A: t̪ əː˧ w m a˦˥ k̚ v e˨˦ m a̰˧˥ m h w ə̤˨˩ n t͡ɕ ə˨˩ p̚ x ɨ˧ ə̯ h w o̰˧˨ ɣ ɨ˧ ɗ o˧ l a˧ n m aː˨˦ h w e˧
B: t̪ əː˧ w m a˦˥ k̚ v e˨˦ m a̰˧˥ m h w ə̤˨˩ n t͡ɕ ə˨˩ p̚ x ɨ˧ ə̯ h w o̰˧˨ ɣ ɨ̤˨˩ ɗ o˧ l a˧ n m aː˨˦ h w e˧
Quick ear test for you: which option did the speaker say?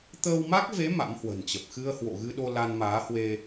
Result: A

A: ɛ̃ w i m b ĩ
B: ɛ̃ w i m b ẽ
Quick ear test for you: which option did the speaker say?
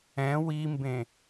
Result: B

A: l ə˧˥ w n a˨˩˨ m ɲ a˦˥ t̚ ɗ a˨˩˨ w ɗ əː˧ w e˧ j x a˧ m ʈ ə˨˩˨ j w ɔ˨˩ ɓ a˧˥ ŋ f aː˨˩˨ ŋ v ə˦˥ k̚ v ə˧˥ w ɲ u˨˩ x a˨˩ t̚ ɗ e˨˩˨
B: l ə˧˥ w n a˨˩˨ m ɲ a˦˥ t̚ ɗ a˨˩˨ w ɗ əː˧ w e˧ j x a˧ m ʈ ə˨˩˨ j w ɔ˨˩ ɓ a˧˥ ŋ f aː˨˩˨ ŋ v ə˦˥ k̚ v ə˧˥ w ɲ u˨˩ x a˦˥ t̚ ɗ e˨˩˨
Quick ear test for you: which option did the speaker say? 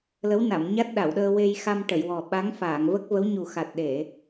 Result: A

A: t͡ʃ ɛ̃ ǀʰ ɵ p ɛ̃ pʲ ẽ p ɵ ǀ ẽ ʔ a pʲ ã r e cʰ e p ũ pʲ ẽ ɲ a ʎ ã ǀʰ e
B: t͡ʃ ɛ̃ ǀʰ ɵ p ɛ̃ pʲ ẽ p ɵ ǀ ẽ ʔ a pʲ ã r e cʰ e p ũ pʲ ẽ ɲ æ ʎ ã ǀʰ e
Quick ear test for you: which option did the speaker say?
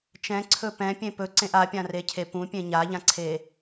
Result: A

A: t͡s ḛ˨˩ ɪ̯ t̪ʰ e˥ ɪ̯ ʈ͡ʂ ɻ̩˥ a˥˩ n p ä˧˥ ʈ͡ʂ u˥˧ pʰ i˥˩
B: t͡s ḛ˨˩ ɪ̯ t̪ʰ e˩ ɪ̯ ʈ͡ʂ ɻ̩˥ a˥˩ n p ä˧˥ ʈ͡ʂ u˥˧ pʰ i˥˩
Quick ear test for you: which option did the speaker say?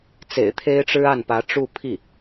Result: A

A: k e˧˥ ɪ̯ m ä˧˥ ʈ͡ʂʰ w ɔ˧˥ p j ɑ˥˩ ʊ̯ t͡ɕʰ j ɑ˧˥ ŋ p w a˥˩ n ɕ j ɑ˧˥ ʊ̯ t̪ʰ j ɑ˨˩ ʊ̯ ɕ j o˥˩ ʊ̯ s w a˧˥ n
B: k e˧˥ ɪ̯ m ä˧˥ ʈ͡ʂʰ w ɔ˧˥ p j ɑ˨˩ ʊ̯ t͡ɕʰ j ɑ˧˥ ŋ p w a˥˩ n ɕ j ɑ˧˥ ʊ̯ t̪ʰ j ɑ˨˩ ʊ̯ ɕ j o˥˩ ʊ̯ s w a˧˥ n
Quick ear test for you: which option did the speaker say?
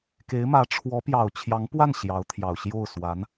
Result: B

